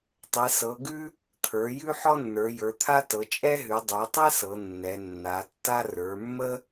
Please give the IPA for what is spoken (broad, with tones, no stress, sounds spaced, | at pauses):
tˤ ɛ˩˧ s ɤ˩˧ ɡ ʉ˥ | t̪ʰ ə˞˩˧ j ʉ˥ ħ ɔ˥ nː ə˞˩˧ j ə˞˩˧ t̪ʰ a˥ t ɤ˩˧ t͡ʃʼ ɛ˥ ɦ ʉ˩˧ dˤ ə˞˩˧ tˤ ɛ˥ s ɤ˩˧ nː ɛ˩˧ nː a˩˧ tː a˥ r ə˞˩˧ mː ə˥